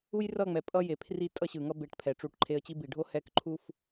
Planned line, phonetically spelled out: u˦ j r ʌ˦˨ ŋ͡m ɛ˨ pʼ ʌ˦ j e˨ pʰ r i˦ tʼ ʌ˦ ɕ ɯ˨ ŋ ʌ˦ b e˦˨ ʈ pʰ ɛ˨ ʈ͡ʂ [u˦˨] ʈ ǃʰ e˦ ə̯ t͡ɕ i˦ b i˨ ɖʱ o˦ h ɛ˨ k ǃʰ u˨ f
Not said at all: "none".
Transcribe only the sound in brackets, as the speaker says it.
u˦˨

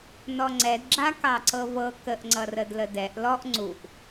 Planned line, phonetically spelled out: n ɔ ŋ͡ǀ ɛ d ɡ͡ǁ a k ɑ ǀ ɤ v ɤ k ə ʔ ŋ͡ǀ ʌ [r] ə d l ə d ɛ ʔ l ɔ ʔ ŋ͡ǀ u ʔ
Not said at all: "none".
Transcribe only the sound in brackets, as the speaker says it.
r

